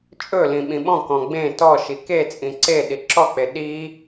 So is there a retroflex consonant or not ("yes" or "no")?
no